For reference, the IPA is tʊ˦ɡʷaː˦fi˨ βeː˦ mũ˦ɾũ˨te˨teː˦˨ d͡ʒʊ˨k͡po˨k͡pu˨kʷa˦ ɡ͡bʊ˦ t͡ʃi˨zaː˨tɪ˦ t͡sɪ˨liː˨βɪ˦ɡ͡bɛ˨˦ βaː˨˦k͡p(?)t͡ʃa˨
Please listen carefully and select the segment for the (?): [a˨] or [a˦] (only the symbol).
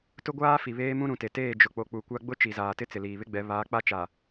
a˦